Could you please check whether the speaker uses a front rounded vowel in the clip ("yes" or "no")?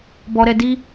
no